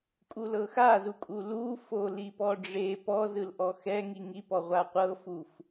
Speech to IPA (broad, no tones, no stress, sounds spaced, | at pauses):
kʼ u l ɤ x a z u kʼ u l u f o l i p ɔ ɖ͡ʐ e p ɔ z ɯ l ʔ ɔ x ɛ ŋ i ŋ i p ɔ ʁʷ a qʷ ɤ f u f